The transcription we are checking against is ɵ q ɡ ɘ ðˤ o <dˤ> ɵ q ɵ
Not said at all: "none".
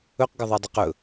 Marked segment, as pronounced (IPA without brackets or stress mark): dˤ